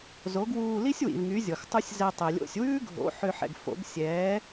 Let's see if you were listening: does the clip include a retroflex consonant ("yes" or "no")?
no